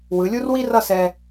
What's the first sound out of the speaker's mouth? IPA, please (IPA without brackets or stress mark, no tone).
w